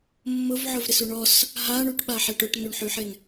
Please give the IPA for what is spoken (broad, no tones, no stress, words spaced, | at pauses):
mːʊvʕʊvɾɪsu ɳɔs | ɦaɳuʈɓaħɛʈ ʊʈnuɳħyħɪn